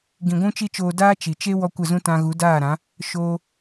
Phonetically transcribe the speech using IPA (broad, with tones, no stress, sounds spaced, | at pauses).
ɡ ĩ˨ ɡʷ ũ˦ t͡ʃ i˦ t͡ʃ oː˧ d aː˦ t͡ʃ i˨ t͡ʃ e˦ w ɔ˦ kʷ ə˦˨ z ũ˦ t ã˧ ɣ u˨˦ d aː˦˨ ɾ ã˨˦ | ʃ oː˧